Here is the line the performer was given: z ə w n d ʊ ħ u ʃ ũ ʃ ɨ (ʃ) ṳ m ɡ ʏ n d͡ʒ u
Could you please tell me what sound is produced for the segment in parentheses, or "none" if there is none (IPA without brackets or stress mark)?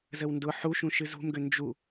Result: z